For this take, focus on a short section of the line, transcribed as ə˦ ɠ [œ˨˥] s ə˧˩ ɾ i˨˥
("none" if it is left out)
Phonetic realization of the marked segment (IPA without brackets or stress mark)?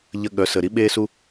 œ˨˥